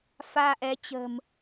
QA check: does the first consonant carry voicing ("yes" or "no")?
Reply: no